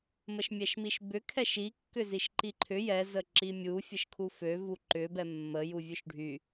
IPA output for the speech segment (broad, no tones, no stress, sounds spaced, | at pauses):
m ə ʃ mʲ ɛ ʃ m i ʃ b ʏ kʰ ɛ ʃ i kː ʏ z i ʃ ǃ i ǃʰ ʏ j ɛ z ə ǁ i mʲ u fʲ ə ʃ kʰ u f ø v u ǃ ʏ b ɛ mː ə j u vʲ ø ʃ ɖʱ y